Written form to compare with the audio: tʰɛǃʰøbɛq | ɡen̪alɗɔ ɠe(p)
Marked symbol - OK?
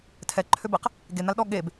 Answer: no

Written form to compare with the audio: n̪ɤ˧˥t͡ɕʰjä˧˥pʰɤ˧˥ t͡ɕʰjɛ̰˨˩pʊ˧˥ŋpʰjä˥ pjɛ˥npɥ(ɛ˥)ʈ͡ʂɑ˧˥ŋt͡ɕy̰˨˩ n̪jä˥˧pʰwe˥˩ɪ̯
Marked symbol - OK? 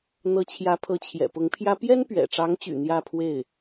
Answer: no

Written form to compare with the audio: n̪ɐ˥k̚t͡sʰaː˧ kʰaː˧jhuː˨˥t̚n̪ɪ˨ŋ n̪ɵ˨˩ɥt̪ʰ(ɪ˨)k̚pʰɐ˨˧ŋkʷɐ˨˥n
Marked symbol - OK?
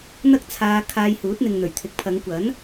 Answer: yes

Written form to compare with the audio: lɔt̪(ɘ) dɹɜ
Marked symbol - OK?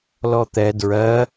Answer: no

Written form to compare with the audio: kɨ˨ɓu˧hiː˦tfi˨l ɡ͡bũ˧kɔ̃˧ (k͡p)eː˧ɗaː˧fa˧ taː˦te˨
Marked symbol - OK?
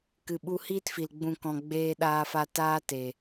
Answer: no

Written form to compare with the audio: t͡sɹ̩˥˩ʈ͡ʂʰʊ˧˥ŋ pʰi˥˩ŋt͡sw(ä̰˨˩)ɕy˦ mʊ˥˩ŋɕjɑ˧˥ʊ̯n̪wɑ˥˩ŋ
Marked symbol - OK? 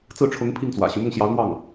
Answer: yes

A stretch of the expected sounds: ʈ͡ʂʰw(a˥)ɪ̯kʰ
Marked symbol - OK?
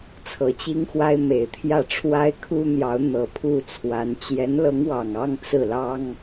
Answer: yes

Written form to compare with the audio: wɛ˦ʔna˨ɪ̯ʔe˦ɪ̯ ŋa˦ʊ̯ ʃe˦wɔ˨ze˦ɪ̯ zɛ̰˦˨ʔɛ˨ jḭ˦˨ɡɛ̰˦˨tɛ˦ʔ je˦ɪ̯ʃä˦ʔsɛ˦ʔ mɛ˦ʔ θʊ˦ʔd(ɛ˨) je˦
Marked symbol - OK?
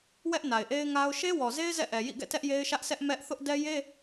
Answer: no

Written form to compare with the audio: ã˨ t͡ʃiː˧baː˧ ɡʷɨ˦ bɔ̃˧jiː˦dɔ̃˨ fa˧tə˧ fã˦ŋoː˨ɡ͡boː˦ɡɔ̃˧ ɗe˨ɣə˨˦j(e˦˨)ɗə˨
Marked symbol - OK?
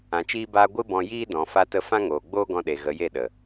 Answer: yes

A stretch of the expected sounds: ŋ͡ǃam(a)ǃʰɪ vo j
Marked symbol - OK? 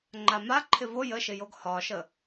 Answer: yes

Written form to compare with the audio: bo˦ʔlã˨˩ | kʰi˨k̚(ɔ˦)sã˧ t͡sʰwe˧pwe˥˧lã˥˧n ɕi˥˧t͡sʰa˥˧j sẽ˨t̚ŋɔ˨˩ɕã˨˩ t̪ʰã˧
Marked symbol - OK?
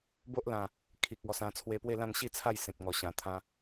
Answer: no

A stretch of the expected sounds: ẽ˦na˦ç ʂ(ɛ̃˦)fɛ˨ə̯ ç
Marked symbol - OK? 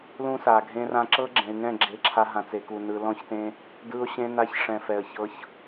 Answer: no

